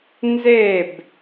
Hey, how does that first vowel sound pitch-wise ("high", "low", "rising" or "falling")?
falling